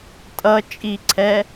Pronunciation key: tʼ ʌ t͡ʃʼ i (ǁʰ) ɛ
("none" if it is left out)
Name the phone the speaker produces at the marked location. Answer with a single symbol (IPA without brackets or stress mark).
ǀʰ